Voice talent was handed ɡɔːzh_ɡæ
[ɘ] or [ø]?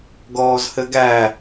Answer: ɘ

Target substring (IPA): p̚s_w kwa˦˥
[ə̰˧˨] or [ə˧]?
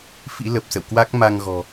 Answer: ə̰˧˨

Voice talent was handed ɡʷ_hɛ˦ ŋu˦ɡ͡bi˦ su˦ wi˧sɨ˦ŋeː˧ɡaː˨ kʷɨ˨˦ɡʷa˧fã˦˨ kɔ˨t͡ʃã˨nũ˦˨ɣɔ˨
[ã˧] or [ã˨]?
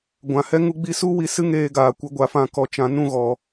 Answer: ã˨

